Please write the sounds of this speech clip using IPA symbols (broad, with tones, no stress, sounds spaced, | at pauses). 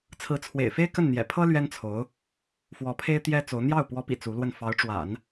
t͡sʰ ɹ̩˧˥ t͡sʰ w ḛ˨˩ ɪ̯ f e˥ ɪ̯ k ə˥˩ n n̪ j ɛ̰˨˩ pʰ ɤ˥ l ɥ ɛ˥ n t͡sʰ o˧˥ ʊ̯ | f w ɔ˧˥ pʰ e˥ ɪ̯ t̪ j ɛ˥ t͡s o˧˥ ʊ̯ n̪ j ɑ˥˩ ʊ̯ p w ɔ˧˥ p ḭ˨˩ t͡s u˧˥ l w ə˥˩ n f ɑ˧˥ ʊ̯ ʈ͡ʂ w a̰˨˩˦ n